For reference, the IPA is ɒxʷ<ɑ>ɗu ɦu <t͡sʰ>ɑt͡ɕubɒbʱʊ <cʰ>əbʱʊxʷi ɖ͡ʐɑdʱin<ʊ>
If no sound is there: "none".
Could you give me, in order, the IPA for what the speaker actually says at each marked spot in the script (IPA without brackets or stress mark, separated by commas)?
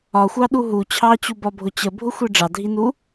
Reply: ɑ, t͡ɕʰ, t͡ɕ, u